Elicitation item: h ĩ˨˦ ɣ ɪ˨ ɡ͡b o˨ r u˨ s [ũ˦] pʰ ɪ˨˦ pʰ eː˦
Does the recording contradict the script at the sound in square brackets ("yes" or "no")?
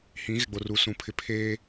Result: yes